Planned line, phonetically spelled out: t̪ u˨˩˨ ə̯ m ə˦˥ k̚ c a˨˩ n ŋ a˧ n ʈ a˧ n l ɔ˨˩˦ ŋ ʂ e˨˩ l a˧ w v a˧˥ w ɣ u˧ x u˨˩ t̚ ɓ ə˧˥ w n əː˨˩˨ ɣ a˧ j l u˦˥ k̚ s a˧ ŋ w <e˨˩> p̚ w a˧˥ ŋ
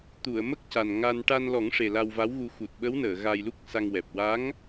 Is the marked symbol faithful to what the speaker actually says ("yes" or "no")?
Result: no